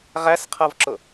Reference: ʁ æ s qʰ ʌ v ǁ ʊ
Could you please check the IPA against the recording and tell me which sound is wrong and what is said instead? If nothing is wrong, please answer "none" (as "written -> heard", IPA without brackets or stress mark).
none